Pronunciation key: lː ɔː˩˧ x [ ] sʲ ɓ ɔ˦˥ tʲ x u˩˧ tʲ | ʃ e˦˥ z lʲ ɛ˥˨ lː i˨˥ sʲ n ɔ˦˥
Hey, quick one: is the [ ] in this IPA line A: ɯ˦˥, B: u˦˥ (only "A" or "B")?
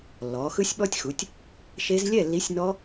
A